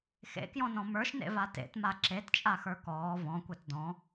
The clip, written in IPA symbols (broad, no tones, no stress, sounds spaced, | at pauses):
x ḛ k j ɔ̃ n ɔ̃ m ə˞ ʃ n ḛ v a t ḛ t m a ǁ e t t͡ʃʼ a x ə˞ k ɔː v ɔ̃ kʷ ɛ t d ɔ̃